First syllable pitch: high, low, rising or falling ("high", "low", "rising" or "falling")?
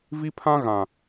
high